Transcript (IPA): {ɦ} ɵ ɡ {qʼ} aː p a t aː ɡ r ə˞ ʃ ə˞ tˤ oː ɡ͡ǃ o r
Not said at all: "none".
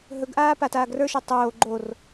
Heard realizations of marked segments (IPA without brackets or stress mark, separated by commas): ɦ, ʔ